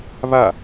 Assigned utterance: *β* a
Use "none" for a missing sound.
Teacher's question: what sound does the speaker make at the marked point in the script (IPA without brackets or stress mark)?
β